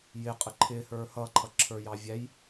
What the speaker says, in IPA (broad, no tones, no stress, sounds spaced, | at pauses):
j ɪ qʼ ə ǃʰ ɪ h ə˞ h ʌ ǃʰ ʌ ǁʰ ə˞ j ɑ vʲ æ j